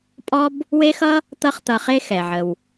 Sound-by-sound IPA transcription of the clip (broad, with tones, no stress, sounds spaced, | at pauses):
pʼ ɔ˥ b | w e˥ x ʌ˥ | t̪ ʌ˥ χ t̪ ʌ˧ χ e˥ x ɛ˩ ʕ ə˩ w